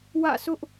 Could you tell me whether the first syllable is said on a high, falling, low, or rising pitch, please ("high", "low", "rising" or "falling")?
falling